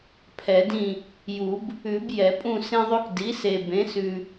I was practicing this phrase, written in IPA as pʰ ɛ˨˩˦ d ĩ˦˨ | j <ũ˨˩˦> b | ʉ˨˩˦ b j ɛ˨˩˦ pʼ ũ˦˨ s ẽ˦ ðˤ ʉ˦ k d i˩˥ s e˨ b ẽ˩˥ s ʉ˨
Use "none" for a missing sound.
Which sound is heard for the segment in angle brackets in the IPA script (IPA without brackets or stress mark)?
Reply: u˨˩˦